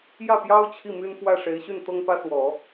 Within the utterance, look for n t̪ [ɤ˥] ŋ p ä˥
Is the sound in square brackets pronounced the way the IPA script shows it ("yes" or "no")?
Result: yes